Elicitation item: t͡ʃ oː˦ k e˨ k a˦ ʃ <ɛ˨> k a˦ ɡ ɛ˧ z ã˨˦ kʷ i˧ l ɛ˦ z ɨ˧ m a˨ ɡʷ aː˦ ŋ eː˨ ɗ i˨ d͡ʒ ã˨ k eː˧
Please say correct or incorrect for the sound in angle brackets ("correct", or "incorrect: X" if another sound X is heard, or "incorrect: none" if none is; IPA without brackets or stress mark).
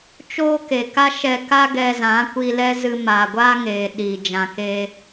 incorrect: ɛ˧